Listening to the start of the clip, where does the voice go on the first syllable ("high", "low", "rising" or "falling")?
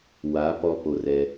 rising